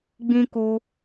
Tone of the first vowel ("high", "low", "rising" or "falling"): high